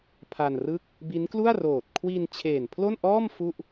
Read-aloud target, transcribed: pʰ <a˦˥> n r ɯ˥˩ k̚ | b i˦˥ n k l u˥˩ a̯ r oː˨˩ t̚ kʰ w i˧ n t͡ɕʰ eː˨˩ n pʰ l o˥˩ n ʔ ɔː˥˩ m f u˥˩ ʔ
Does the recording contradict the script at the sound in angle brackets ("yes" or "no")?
yes